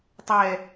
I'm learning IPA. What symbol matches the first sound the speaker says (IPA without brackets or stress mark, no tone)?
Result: tˤ